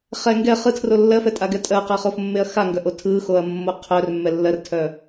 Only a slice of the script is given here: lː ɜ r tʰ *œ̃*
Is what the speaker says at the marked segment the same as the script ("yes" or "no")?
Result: no